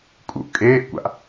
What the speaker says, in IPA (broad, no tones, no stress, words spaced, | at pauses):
kʼṵʔ kʼeːʔkʷa̰ʔ